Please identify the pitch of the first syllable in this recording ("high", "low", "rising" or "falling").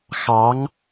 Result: rising